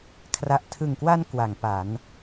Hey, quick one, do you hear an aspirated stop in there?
yes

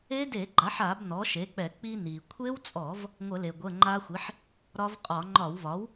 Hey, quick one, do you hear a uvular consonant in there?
yes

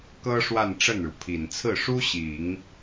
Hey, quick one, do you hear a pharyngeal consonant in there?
no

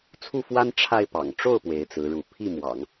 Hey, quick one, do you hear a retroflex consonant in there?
yes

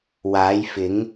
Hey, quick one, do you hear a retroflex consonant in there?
no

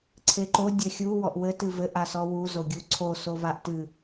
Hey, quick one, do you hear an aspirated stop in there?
yes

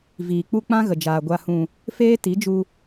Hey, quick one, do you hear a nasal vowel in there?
yes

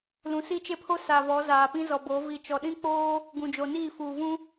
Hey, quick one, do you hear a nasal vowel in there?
yes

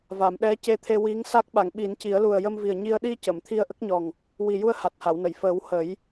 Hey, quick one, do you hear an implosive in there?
yes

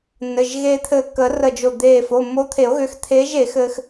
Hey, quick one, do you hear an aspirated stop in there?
yes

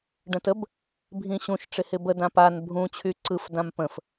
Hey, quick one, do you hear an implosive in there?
no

